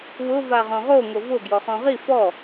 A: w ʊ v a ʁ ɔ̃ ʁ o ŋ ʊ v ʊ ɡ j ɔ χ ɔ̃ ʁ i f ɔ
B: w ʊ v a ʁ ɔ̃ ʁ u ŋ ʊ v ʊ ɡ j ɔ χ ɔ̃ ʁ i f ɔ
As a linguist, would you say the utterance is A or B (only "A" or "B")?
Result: A